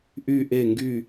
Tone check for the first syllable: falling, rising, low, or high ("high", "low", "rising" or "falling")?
falling